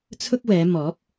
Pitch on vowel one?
high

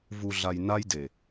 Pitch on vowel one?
low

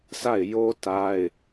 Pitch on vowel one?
falling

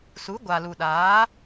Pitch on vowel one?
rising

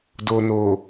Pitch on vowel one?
low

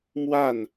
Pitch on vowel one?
falling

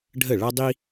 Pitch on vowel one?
falling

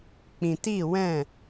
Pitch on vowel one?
low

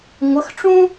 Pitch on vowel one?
rising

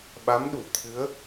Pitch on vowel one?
rising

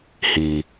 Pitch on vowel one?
low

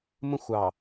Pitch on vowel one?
high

